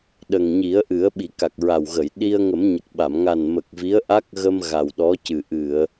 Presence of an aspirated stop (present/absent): absent